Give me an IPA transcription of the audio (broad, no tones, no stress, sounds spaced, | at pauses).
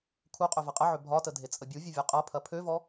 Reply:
kʰ u qʼ ø v ɐ qʼ ə ʕ ʏ bʱ ɒ t ə dʱ e t͡sʼ ə bʲ u vʲ ɐ vʲ ɒ qʼ ɐ pʰ ɐ pʰ ø v ɔ